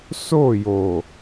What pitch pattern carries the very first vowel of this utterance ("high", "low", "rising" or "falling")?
falling